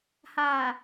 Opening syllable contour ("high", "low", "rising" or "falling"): low